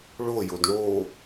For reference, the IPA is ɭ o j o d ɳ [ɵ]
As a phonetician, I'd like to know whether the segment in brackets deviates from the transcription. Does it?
yes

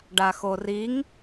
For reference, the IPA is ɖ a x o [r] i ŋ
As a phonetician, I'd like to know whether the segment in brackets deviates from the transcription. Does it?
no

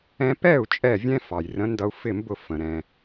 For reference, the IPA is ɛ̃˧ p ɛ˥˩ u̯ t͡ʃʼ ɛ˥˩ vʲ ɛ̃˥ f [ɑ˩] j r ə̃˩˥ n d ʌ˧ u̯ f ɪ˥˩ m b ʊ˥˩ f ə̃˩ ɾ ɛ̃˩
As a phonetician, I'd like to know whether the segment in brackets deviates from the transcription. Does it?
no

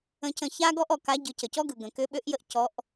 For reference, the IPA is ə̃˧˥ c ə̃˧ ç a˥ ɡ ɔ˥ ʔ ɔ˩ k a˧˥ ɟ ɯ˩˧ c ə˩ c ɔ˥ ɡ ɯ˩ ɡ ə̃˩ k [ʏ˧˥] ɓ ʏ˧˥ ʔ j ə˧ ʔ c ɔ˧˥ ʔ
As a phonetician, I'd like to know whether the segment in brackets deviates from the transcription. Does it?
no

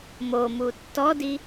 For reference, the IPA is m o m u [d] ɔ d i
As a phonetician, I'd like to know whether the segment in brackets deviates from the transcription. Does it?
yes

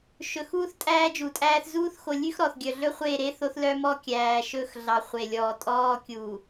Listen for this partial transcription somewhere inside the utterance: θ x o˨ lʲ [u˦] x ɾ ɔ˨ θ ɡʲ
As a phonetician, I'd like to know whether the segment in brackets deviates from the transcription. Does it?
yes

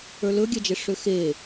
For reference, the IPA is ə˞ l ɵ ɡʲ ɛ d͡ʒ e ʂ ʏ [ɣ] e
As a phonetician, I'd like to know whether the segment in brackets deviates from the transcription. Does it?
yes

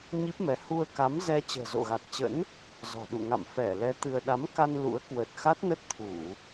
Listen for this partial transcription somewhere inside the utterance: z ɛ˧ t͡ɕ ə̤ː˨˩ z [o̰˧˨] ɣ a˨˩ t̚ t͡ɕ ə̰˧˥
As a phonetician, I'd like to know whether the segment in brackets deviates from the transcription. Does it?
no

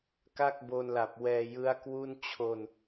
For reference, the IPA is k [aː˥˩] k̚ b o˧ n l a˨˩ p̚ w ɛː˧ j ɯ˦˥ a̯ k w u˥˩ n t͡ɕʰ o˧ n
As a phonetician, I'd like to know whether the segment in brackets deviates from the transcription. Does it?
yes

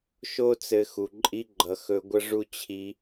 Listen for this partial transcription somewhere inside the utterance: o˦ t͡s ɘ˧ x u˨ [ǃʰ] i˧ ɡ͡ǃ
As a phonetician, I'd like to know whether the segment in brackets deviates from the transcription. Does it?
yes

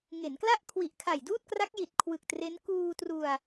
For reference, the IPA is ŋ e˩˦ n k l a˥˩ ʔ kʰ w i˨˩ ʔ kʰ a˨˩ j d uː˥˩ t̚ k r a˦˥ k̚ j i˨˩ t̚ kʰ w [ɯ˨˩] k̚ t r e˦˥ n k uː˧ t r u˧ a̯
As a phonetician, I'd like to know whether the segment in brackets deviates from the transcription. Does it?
no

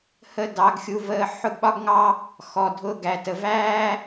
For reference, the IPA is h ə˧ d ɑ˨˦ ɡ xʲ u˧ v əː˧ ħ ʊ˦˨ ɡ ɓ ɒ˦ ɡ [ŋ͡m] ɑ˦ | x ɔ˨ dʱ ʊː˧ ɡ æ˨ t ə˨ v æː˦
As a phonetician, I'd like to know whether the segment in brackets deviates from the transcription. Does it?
yes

